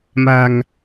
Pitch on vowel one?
low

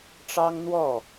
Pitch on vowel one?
high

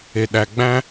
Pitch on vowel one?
low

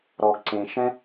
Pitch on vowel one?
low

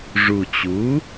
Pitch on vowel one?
low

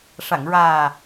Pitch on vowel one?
low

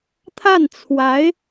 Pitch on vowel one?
falling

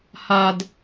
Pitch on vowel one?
high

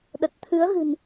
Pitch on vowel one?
low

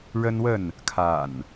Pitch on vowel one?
high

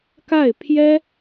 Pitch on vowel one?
falling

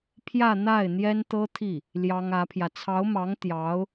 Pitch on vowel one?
falling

